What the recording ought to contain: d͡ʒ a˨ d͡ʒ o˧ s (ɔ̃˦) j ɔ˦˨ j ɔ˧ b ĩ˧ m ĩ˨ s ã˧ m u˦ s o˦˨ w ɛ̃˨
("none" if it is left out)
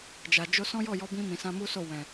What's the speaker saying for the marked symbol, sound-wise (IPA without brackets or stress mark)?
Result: ɔ̃˦